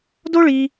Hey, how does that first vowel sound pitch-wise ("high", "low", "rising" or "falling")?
high